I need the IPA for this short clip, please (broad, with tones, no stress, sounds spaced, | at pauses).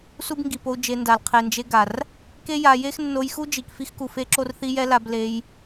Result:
s u˦ b ŋ ɡ i˨ p o˧ u̯ d͡ʒ e˧ n d a˨ l qʰ e˨ n d͡ʒ e˧ ɡ a˨ r | k e˦ j a˧ j e˦ x nː o˧ j x u˦ d͡ʒ i˨ k f i˦ x k u˨ f e˦ ǁ o˦ r θ i˦ j ɛ˦ l a˧ b l e˧ j